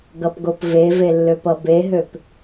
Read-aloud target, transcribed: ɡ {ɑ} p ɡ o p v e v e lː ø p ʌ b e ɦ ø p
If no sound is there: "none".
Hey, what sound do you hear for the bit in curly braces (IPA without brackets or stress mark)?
ʌ